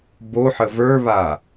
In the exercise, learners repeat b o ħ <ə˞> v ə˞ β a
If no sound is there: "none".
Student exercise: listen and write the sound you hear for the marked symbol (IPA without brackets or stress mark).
ə